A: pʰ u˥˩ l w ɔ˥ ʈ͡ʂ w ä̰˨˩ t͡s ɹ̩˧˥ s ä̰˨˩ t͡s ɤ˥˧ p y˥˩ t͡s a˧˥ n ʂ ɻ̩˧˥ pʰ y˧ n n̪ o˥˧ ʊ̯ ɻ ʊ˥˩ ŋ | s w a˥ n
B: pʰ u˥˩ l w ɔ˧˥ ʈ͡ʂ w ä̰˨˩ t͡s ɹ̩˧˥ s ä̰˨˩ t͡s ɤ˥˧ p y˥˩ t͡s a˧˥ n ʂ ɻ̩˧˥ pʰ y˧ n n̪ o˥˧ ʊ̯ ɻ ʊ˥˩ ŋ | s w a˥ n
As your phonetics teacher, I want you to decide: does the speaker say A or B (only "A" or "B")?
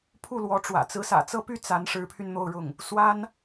B